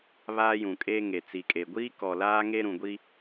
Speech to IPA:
βaː˦jũ˨kʼeː˦ ŋe˨t͡si˨kʼe˨ ɡʷiː˦kɔ˨laː˦ ŋe˦ɾũ˨ɡʷi˦

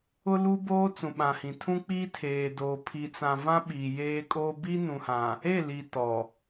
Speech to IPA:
ʊ˦lu˦boː˦ t͡sũ˨ɓã˨hĩ˨ tʰũ˦k͡piː˦ tʰeː˨ doː˨ pʰi˨t͡sã˨ vã˦ ɓiː˨jeː˦kʼoː˦ bi˦nũ˨hã˨ | e˦˨li˨ tɔ˨

